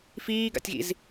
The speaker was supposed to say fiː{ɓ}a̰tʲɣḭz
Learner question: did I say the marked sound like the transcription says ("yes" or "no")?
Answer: no